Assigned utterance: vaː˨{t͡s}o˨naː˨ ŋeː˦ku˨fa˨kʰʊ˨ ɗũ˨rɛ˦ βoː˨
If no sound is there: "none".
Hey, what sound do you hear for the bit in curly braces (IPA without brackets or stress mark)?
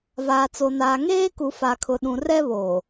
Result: t͡s